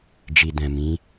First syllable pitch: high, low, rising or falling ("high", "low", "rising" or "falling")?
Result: low